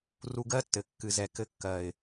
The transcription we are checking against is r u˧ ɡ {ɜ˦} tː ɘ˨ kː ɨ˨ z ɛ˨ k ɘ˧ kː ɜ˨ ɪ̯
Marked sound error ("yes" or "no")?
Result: no